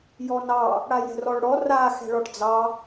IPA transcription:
j ɔ n ɑ | ɽ a j ɛ̤ r ɔ ɭ ɽ ɔ r a x ɛ̤ ɭ ɔ ʈ d͡z ɑ

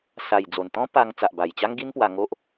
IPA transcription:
s a˨˩ j d͡z o˨˩ n t̪ ɔ̃˦ p a˧ ŋ t͡s a˨ ʔ b a˨˩ j t͡ɕ a˦ ŋ ɡ i˦ n p w a˧ ŋ o˦ ʔ

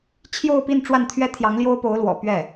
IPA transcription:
t͡ɕʰ j o˥˧ ʊ̯ p i˥˧ n ʈ͡ʂ w a˥˩ n t̪ʰ ɥ ɛ˥ t̪ʰ j ɑ˧˥ ŋ l j o˥ ʊ̯ p o˧˥ ʊ̯ l w ɔ̰˨˩ p ɥ ɛ˥˩

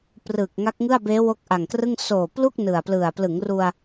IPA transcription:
p r ɯː˨˩ k̚ ŋ a˦˥ k̚ ŋ ɯ˥˩ a̯ b eː˦˥ w o˦˥ k̚ ʔ a˨˩ ŋ k r ɯ˥˩ ŋ s oː˨˩ p l u˥˩ k̚ n ɯ˨˩ a̯ p l ɯ˨˩ a̯ p l ɯ˩˦ ŋ r u˧ a̯

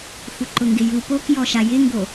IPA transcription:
xʷ ɪ ǃ ʊ ŋ ɡ ɪ j u p o k j ɔ ʃ a j ɪ ŋ ɡ o

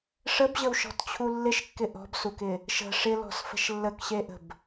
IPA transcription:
ʂ ə b ʑ ə w ʃ ɔ̤ t t͡ɕʰ u lː ɪ ʃ kː ɪ ʔ ɔ̤ b s u k ɪ | ʃ ə̤ ʂ ɪ l ɔ̤ s f ə̤ ʃ lː ə k ɕ e ʔ ə̤ b

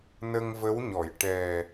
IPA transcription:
n ə˧ ŋ v ə˧˥ w ɲ ɔ˨˩˨ j ʈ ɛ˨˩

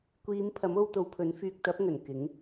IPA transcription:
kʷ iː˨˧ m pʰ ɐ˨˥ m o˧ w t̪ o˨˧ w pʰ ɵ˨˥ n f yː˧ k̚ t̪ ɐ˨˥ p̚ ŋ ɵ˨˩ n k ɪ˨˥ ŋ

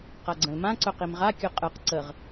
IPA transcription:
q a ɡ͡ǀ ə̃ l m ã ǀ ɵ q i m ʁ a kʲ ɵ qʼ ɯ q ǀ ə ʁ

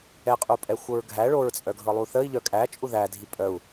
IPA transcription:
ɛ qʼ u pʼ ɛ xʷ ɤ ɹ ɡʱ æ ɭ o ɹ t͡sʼ œ ɡʱ ɤ lˠ u θ ə i̯ ʎ œ kʼ æ t͡ʃʼ u ð æ dʱ i pʼ œ u̯

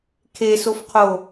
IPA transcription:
kʰ e s o f qʰ o

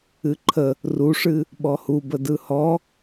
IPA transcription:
ɨ ǃʰ ə | r u ʂ ɨ | ɓ ɔ h u b ə d ɯ h ɔ

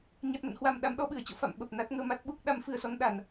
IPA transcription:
ɲ a˨˩ t̚ m ə̰˧˨ n h w a˧˩ m ɗ a˨˦ m ɗ ɔ˧ ɓ ɨ˧˩ ə̯ t͡ɕ o̰˧˨ f a̰˧˨ m ɓ ə˨˩ p̚ n a˦˥ t̚ ŋ əː˧ m a˦˥ t̚ ɓ u˦˥ k̚ ɗ a˨˦ m f ɨ˨˩ ə̯ s ɔ˧ n ɗ a˨˩ n

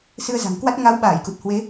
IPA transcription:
s ɨ˧ ə̯ z a̤˨˩ ŋ k w a˦˥ t̚ ŋ a˨˦ w ɓ aː˧˩ j k u˨˩ t̚ h w e˨˦

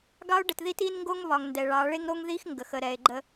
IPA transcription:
ɡ ɑ˦ o̯ ɖ ə˨ t ð i˦ t i˦ n ŋ ɡ o˦ ŋ β ɒ˨ ŋ n d ɛ˨ ɭ ɑ˨˦ ɭ e˦ ŋ ɾ o˦ ŋ ð i˦ x ŋ ɡ ə˨ x ə˨ ɾ ɛ˨ e̯ ɡ͡ǃ ə˦

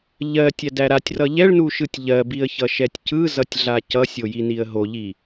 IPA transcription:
ʎ ɜ tʲ æ d æ ɾ a tʲ r ʌ ʎ ɛ ɭ n u ʃ ɯ tʲ ʎ ɜ b i ə̯ ç ʌ ʃ ɛ tʲ c ɯ z ʌ tʲ ɮ a c ʌ sʲ o j i n i ə̯ ɦ o ʎ i

